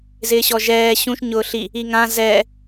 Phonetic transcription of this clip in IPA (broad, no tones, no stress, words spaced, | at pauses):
zɪːɕɔʒɛː ɕũʃ ɲʊːɬi | iŋã zɛ